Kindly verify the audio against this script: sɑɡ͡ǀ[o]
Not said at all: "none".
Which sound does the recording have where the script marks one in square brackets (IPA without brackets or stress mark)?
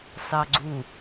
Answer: u